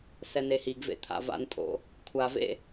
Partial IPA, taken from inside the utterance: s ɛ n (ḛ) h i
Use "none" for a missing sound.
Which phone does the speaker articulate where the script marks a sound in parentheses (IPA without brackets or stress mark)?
e